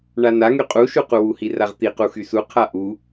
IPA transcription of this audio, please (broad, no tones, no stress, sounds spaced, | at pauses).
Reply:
ɳ a n a ŋ y qʼ u ʃ u q u w u h i r a ʁ t̪ i q u x y s u qʰ a ʔ u